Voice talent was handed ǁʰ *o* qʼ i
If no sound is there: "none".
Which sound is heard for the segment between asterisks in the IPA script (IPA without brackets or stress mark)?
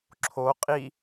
o